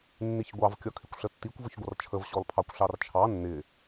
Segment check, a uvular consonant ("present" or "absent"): absent